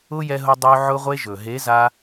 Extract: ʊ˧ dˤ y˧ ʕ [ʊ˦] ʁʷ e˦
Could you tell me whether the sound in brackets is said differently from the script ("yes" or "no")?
no